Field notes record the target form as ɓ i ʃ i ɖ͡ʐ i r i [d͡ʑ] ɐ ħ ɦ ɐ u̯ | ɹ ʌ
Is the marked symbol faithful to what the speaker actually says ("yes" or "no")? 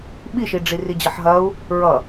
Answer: yes